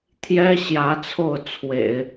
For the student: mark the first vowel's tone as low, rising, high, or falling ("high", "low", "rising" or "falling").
high